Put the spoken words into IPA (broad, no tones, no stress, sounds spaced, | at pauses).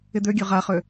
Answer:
ɪ d̪ ø ɡʲ ø ʁ a χ ø